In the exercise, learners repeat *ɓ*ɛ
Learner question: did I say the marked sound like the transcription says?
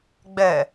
no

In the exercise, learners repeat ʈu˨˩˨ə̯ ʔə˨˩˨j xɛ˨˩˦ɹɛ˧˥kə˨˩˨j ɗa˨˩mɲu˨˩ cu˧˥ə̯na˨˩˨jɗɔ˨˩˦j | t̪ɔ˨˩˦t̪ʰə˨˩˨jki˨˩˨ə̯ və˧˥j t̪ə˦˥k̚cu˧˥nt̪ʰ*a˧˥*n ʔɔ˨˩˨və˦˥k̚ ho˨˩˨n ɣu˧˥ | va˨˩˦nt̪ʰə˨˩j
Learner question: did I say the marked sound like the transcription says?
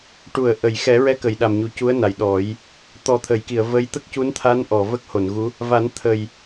yes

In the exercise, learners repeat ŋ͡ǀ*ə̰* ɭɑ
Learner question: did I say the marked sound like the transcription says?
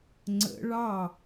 yes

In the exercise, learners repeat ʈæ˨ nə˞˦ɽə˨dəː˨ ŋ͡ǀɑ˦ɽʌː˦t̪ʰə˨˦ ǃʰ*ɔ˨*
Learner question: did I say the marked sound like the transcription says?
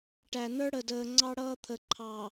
no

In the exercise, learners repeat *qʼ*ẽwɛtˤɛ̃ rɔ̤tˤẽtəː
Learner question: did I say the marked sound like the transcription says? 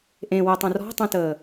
no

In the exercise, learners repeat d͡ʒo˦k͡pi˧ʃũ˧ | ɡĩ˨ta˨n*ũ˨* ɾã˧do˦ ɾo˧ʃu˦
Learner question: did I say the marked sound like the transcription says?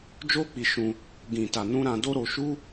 no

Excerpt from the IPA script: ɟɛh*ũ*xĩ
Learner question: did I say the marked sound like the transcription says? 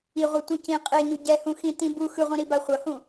yes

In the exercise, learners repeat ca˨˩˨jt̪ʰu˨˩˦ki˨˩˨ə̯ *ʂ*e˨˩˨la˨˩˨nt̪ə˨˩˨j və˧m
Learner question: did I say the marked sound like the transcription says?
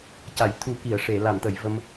yes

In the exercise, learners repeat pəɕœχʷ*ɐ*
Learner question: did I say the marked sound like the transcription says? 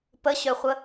no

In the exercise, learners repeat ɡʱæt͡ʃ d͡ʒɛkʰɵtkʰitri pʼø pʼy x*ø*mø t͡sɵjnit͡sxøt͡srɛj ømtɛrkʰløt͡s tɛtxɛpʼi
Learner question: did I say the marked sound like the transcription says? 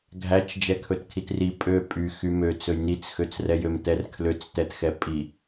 no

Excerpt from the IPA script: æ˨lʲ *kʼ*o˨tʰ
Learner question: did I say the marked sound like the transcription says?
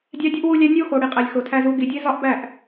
no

